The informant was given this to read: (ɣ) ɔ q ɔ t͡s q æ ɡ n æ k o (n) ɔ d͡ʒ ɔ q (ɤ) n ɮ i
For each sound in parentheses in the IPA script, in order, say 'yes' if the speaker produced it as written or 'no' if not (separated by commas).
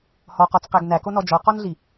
no, yes, no